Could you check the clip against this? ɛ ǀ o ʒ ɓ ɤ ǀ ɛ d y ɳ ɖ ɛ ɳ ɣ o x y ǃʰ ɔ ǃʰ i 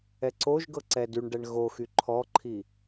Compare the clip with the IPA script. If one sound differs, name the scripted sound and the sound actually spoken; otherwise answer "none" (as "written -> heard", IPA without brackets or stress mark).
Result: ɓ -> ɡ